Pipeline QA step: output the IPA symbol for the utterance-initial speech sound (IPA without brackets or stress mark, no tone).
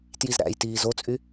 t